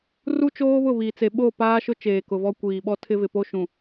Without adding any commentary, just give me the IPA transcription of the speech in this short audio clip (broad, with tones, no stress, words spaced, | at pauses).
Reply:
ru˦ t͡ʃoː˦βʊ˦˨βiː˨t͡se˨ ɓo˦˨ paː˦ʃʊ˦t͡ʃeː˨ kʊ˨vɔ˦ kʷiː˨ɓɔ˦ tʰɪ˦ vɪ˨po˦ ʃũ˨